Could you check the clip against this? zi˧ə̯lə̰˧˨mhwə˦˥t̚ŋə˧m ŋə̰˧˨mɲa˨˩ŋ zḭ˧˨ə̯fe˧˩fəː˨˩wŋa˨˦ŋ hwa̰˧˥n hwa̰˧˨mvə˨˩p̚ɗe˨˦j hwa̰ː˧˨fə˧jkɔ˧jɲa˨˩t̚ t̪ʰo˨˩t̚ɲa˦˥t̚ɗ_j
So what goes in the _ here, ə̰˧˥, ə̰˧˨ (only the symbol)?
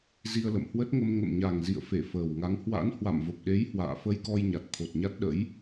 ə̰˧˥